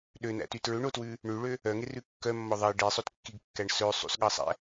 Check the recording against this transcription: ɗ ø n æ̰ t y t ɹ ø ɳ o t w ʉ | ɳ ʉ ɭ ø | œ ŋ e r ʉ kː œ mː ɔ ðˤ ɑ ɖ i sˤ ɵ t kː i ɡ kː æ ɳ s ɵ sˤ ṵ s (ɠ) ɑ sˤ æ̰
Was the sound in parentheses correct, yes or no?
yes